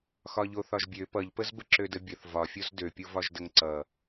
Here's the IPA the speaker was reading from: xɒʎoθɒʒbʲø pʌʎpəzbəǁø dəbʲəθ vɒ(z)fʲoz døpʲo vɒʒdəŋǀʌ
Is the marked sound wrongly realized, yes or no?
yes